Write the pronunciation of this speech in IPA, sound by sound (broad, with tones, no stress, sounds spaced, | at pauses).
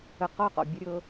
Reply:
ə˧ q ɔ˦˨ q ɔ̰˨ bʲ ə˦ ɾʲ ɤ˦